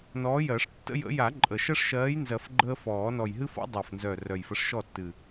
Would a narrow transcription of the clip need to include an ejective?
yes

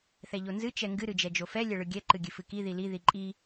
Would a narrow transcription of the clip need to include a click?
yes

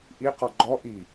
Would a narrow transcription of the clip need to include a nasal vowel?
no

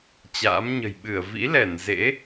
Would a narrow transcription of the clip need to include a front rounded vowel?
no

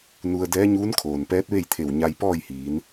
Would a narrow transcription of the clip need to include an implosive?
no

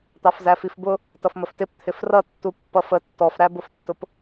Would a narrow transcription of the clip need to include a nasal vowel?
no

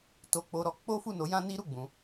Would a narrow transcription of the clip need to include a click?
no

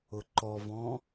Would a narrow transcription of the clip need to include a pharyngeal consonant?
no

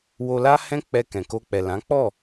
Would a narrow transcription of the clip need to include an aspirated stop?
no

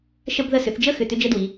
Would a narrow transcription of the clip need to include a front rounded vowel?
yes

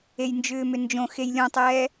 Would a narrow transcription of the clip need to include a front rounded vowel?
yes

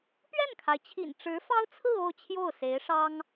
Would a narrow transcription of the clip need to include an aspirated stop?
yes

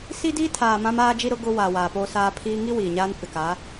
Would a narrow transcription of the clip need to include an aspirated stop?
yes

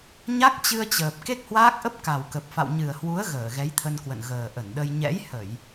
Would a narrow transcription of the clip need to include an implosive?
yes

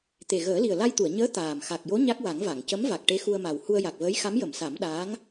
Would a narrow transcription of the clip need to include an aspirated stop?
no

